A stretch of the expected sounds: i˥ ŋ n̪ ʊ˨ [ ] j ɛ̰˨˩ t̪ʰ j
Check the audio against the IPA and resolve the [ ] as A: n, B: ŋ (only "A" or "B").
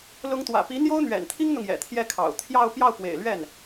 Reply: B